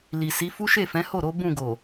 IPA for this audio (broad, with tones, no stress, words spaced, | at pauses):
li˨si˨˦fu˦ ʃe˦˨fɛ̃˨˦ho˦˨ɾo˨˦ bũ˦˨ɡo˨